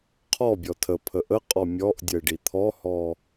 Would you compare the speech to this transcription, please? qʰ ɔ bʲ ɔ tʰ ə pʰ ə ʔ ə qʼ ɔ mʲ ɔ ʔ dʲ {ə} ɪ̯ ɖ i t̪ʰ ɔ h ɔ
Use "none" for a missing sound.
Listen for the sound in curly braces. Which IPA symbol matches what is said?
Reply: ə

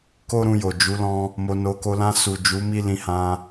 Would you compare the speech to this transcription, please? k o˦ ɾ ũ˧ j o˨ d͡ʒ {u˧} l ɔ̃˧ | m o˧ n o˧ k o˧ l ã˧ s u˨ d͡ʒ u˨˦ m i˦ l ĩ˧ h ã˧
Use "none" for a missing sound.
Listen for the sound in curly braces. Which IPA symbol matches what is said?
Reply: u˨˦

